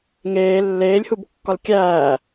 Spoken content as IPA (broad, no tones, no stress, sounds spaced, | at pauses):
ŋ eː lː eː lʲ h u b kː ɒ l kʲ æː